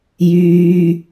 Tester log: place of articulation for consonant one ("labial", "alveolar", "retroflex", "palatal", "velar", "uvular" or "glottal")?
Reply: palatal